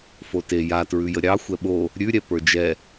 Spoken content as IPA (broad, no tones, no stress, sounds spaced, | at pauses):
f o t e j a t ɹ ʉ j ə ɾʲ ɑ xʷ ɛ ɓ o | ɾʲ ʉ ɾʲ ɛ p ə˞ d͡ʒ ɛ